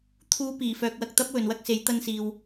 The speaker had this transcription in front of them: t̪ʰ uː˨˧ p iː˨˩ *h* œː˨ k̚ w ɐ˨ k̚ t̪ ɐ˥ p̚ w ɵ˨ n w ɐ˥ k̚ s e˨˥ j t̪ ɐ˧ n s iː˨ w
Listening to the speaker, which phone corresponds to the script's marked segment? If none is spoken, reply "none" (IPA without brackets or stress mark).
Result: f